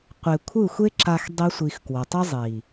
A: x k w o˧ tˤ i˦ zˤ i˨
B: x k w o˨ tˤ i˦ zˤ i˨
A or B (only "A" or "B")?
B